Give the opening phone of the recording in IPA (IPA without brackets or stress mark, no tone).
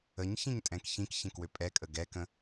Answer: ə